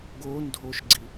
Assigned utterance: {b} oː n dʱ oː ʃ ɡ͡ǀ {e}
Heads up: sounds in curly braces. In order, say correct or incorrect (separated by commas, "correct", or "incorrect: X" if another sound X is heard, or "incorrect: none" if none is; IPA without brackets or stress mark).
incorrect: ɡ, incorrect: i